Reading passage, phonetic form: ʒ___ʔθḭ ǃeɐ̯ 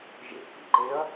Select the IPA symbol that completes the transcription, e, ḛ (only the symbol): ḛ